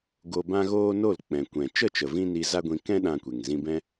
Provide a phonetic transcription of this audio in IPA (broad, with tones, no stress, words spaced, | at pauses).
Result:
ɡo˧bã˦ɣoː˦no˦˨l k͡pɛ̃˨kʷɛ̃˨ t͡ʃə˦˨t͡ʃə˨ vĩ˦ni˧ za˦ɡʷĩ˧ kɛ̃˦ ɗã˧kʷe˨ŋ zĩ˧bɛ̃˦